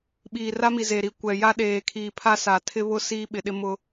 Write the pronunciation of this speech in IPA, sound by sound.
ɓ iː˨ r a˦ m i˨ z e˨ ɾ i˨ kʷ ɛ˨ j a˦ ɗ eː˨ kʰ iː˨ pʰ a˦ s a˨ tʰ ɪ˦ β ʊ˦ s iː˦ ɓ ɪ˨ ɗ ɪ˦ m ʊ˦

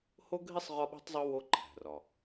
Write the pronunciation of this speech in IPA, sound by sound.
h o˥ ɡʱ i˥ sˤ ʁ ɒ˥ ɓ ṳ˥ tˤ zˤ u˥ w o˥ ǃʰ æ̤˩ r ɒ˩

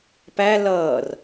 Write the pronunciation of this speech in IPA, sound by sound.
p æ l ʌː r

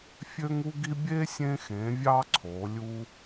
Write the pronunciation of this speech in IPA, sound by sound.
fʲ ø˥ ŋ u˥ ɡ i˥ bʲ e˥ sʲ ẽ˧ x ẽ˩˧ vʲ ɑ˧ ǀʰ o˩˧ lʲ u˧

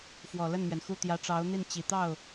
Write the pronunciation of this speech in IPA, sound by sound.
f w ɔ˨˩ l ə˥˩ n m ɥ ɛ˩ n x u˥˩ t̪ j ä˧˥ ʈ͡ʂ ɑ˧˥ ʊ̯ n̪ i˥˩ n t͡ɕ i˨˩ t̪ ɑ˥˩ ʊ̯

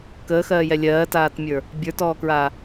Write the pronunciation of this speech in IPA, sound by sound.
k əː x ɜː j ɛ lʲ ɜː t aː t mʲ ə˞ | bʲ ə˞ t ɔː k ɹ aː

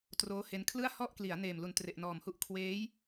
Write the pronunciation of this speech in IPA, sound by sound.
t r oː˦˥ h e˦˥ n kʰ l ɯ˥˩ a̯ h ɔ˥˩ ʔ k l i˩˦ a̯ n eː˨˩ m l u˨˩ n t r e˨˩ ʔ n ɔː˨˩ m h u˥˩ ʔ kʰ w eː˦˥ j

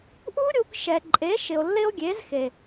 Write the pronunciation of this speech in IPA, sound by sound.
ʔ u˦ ɾʲ u˧ k ʃ ɛ˨ ǃʼ e˨˦ ʃ ɪ˨ o̯ lː ɪ˦ o̯ ɡʲ e˨˦ z x e˨

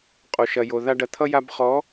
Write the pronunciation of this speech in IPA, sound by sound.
qʼ o˨ ʃ ɐ˨ j o˨ ð a˧ ɖ ɐ˨ t̪ʰ ʌ˧ j a˧ b χ ɔ˨˦

